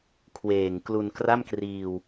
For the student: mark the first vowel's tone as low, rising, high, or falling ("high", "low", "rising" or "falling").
low